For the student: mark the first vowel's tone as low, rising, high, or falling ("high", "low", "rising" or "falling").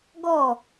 falling